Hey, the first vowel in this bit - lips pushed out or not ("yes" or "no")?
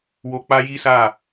yes